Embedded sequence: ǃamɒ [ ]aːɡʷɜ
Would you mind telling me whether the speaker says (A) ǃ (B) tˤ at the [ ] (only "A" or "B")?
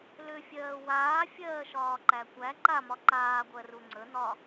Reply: A